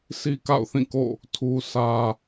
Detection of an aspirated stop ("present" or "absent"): present